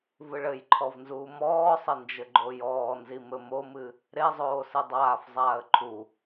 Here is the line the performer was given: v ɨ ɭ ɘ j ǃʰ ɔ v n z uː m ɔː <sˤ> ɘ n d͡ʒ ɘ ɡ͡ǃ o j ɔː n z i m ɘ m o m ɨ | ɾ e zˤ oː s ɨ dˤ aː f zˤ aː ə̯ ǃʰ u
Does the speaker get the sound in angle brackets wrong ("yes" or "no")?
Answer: no